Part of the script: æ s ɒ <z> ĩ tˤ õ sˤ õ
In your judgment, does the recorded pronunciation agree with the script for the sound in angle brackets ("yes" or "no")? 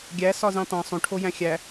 yes